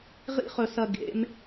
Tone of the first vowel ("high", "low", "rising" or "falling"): high